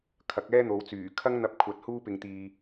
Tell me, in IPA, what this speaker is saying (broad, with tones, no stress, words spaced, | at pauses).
kʰɐ˨˥k̚ɛː˥n̪o˨˧wt͡syː˨˩ kʰɐ˥ŋn̪ɐ˧p̚kʷʰɐ˨˥t̚ huː˥pɪ˧ŋt̪iː˧